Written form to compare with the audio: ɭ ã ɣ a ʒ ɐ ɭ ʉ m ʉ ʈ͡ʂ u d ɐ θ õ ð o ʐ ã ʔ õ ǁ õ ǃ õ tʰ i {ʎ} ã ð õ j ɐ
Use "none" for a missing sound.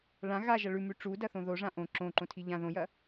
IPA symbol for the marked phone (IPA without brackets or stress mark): ʎ